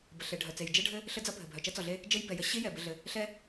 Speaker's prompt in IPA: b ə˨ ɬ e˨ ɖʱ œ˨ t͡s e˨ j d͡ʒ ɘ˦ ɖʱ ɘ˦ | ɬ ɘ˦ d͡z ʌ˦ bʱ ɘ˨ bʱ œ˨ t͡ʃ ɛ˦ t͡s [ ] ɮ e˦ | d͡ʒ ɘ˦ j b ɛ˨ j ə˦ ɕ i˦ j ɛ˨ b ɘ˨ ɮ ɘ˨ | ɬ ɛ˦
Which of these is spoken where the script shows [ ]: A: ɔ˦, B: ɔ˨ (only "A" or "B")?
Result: B